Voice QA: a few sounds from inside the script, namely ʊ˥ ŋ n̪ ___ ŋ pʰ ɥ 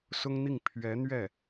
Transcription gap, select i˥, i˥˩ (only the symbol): i˥˩